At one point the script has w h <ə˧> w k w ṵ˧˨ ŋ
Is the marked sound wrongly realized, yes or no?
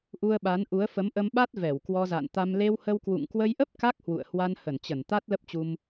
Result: no